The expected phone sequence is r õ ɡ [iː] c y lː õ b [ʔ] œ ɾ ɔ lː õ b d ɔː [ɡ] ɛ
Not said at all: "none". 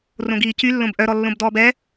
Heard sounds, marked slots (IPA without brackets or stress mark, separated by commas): iː, ʔ, b